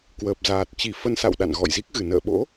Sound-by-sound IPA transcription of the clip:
k w əː˨˩ p̚ z aː˨˩ t̚ t͡ɕ i˧˩ f ə˧ n s a̰˧˨ w ɗ a̰˧˨ n ɣ ɔ̰˧˨ j z i˦˥ k̚ ɣ ɨ˧˩ n ə̰ː˧˨ ɓ o̰˧˥

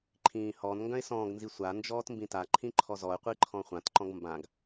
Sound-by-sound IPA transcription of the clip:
ǃʰ ĩː h ɔ n ŋ ɡ œ̃ ɪ̯ s ɔ̃ː ɡ n z i sʷ a n d͡ʒ ɔː t m b ĩ t a ǃʰ ĩ ǃʰ ɔ z ɔ ə̯ qʷ i ǃʰ ɔ̃ χʷ ã t ǃ ɔ̃ ɡ m b ã ɡ

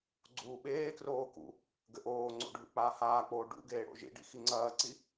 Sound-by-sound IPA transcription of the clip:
ɡ͡ǀ uː ɓ eː k r oː k ṵ | ɡ ɘ ʔ oː ŋ͡ǀ o̰ ɖʱ ṵ k͡p aː h aː k͡p oː ɖ ṵ ɡ eː ɽ o̰ ʒ ḭ ɖ ḭ x i ŋ͡ǀ ɐː ǀ i

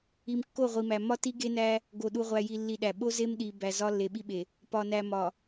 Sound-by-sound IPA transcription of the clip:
i˨ m kː o˦˨ ʁʷ i˨ m æ˨ m ɒ˦ t i˦ ɡ e˦ n æ˦ | ɡ o˨ ɗ u˨ ʁʷ æ˨ j i˨ lː i˨ ɗ æ˨ ɓ o˦ z e˦ m ɗ i˨ b æ˨ z ɒ˦ lː e˨ ɓ i˦ ɓ e˨ | p ɒ˨ n æ˨ m ɒ˨

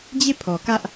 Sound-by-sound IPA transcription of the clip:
d͡ʑ e˦˨ pʰ ɔ˨ k ä˦ ʔ

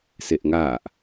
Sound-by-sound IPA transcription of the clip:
s e ʔ ŋ a ʔ

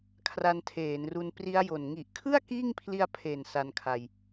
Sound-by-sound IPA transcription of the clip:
kʰ r a˧ n tʰ eː˩˦ n r u˧ n p r i˦˥ a̯ j o˨˩ n ŋ i˨˩ ʔ kʰ ɯ˥˩ a̯ k iː˥˩ ŋ pʰ l i˧ a̯ pʰ e˨˩ n s a˧ n kʰ a˧ j

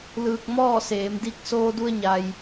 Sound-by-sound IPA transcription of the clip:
l ɯː˧ k̚ m ɔː˥˨ s eː˩˧ m d i˧ k̚ s oː˧ d u˧ ə̯ ɲ a˩ j

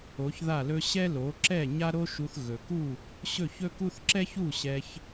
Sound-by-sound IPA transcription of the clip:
o˩˥ ç ð a˥˩ l ɵ˥ ɕ ɛ˥ l o˩˥ ǁ ɛ˥˩ ɲ a˥ ɾ o˥ ʃ u˧ θ ɣ ɵ˩ k u˥˩ | ɕ ɵ˥˩ ç ɵ˥ k u˥ θ ǁ ɛ˥ ç u˥˩ ɕ ɛ˧ ç

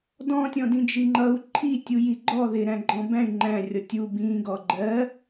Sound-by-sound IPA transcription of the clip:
d ɔ̃ tʲ ɔ̃ d ĩ d͡ʒ i ŋ͡ǃ ʌ u̯ ǃʰ i tʲ u j i ɡ͡ǃ ɔ ð ɪ ɾ æ̃ ɡ͡ǃ ɔ̃ b æ̃ y̯ ŋ͡ǃ æ̃ rʲ ɔ tʲ u b ĩ ɡ ɔ ɡ͡ǃ ɜ

